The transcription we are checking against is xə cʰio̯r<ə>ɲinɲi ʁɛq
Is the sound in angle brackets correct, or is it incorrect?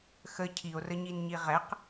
correct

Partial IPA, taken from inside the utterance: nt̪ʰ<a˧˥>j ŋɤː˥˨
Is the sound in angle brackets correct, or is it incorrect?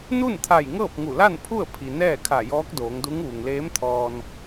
incorrect: a˧˩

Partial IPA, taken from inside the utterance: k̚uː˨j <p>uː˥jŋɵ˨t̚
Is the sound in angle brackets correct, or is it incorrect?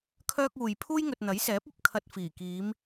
incorrect: pʰ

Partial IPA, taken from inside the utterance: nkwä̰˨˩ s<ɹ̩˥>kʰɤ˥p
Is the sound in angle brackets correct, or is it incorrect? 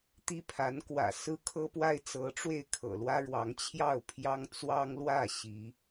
correct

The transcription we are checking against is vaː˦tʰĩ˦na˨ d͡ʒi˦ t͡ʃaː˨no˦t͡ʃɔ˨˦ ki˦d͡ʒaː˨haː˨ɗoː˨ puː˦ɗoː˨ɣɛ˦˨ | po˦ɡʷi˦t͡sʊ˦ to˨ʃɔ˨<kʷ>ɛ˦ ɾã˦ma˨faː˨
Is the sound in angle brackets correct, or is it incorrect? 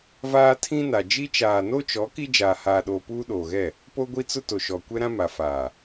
correct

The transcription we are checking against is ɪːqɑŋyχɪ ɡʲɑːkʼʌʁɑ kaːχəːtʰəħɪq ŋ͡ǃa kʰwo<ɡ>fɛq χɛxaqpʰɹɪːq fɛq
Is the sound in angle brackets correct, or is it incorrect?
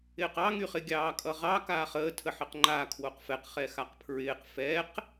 incorrect: q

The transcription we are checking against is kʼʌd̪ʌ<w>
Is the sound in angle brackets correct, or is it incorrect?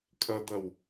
correct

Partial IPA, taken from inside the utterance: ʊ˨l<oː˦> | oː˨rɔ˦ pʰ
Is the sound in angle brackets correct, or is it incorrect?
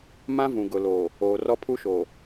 incorrect: oː˨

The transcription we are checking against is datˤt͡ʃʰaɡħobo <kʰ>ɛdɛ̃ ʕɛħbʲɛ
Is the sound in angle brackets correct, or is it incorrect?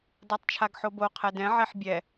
incorrect: qʰ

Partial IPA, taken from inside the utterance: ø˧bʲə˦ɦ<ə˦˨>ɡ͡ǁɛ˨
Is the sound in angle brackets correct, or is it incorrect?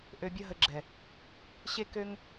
incorrect: ə˧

